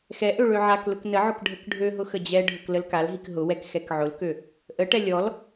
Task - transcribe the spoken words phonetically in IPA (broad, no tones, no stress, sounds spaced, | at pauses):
x ɛ ʔ ø ɭ ø ʕ a k l ʊ k n ə ʕ ʊ k ɖʱ ə k ɖʱ ø ɦ ʊ x ə d͡ʑ ɛ ɖʱ ʊ k l ə l k a l ɦ i k ɦ ʊ w ɛ k x ɛ k ʕ ʊ l k ø | ʔ ə ʈ ɛ lʲ ɔ l